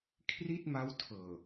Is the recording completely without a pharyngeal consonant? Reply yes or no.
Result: yes